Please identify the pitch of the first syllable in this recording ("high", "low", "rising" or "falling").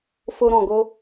high